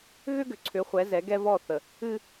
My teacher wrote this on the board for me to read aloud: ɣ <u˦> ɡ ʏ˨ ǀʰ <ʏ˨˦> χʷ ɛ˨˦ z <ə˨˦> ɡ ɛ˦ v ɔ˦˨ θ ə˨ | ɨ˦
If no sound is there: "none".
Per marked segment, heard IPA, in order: ʏ˦, ʏ˨˦, ɛ˨˦

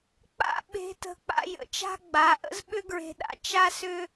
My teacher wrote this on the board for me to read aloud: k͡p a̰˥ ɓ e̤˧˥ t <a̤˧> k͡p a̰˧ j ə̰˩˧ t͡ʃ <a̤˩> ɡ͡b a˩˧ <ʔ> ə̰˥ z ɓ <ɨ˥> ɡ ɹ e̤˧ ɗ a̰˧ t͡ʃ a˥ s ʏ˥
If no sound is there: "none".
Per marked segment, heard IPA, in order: ə̤˧, a̤˥, ʔ, ʏ˥

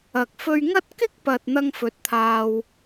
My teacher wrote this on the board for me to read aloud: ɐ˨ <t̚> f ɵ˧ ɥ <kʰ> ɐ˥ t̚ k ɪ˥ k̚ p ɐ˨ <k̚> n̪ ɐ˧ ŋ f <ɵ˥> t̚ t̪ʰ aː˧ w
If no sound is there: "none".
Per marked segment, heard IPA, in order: k̚, ŋ, t̚, ɵ˨˥

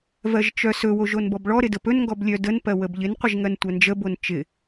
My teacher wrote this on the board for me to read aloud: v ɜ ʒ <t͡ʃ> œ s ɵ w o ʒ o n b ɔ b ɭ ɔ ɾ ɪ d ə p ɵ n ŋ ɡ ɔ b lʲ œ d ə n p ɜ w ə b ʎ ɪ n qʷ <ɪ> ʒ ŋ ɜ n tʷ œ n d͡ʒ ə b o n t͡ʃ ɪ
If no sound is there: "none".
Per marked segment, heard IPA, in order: t͡ʃ, ɪ

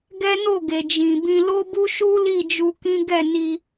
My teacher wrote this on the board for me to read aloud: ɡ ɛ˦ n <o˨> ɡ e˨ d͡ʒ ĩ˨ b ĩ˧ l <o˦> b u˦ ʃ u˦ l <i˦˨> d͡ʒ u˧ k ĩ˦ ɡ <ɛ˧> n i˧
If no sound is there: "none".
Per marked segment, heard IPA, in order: o˦˨, o˦, i˦˨, ɛ˦˨

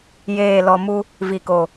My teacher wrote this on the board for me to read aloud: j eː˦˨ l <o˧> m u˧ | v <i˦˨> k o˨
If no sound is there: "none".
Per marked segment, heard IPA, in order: ɔ˧, i˨

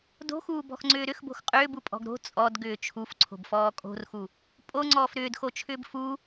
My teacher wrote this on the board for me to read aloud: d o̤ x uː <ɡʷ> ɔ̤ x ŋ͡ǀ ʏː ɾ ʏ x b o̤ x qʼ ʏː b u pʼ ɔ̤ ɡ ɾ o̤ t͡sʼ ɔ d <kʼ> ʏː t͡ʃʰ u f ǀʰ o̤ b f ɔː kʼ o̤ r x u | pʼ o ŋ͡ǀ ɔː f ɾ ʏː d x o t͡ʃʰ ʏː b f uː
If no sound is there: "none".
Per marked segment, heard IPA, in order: b, ɡ

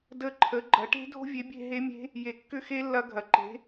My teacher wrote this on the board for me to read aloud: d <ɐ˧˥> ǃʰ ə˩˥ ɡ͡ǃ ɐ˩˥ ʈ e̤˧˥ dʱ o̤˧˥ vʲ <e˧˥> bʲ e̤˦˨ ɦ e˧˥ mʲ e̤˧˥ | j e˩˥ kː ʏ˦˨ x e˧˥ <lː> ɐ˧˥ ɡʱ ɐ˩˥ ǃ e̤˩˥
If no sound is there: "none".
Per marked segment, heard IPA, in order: ə˧˥, e˩˥, lː

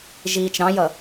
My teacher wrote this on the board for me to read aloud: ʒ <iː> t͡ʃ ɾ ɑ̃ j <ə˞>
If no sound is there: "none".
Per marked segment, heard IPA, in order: iː, ʌ

